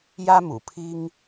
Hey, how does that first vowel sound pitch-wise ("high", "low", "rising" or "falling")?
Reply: high